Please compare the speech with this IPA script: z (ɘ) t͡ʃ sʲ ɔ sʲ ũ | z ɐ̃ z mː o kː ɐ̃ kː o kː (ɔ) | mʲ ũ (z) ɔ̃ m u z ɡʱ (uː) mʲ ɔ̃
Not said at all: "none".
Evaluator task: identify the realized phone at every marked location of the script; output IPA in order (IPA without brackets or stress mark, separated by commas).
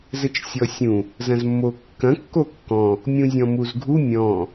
ɘ, ɔ̃, zʲ, u